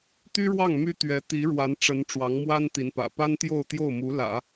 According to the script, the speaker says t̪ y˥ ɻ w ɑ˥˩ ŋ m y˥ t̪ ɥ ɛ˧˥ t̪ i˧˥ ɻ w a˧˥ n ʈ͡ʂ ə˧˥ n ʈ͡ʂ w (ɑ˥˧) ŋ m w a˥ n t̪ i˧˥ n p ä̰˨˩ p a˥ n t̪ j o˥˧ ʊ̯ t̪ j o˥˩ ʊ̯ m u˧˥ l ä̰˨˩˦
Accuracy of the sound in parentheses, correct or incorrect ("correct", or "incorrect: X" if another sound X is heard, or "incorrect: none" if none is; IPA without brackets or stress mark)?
incorrect: ɑ˧˥